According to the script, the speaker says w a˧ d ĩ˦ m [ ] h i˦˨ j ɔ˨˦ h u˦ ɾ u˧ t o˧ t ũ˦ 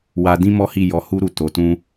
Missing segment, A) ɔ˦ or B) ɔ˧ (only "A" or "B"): A